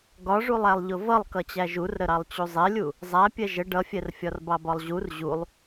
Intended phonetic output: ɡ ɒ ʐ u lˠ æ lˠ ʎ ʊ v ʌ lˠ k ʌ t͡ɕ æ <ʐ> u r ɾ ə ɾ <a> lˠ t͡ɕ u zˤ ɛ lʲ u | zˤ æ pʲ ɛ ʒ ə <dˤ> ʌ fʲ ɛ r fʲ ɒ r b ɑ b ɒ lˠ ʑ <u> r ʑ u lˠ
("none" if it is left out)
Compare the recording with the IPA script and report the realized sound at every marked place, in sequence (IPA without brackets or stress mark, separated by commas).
ʒ, ɑ, ɖ, u